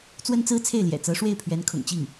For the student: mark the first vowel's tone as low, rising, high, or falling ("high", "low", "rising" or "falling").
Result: high